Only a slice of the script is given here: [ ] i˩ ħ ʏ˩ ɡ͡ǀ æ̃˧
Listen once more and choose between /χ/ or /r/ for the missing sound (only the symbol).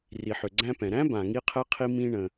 r